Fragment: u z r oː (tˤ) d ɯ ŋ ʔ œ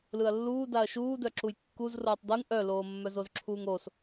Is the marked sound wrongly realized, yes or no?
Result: no